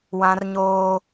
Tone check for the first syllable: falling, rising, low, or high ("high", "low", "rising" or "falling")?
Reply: high